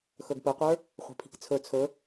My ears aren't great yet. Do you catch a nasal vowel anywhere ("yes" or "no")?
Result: no